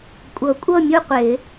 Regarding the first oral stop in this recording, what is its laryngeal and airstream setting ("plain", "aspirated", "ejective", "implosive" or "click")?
ejective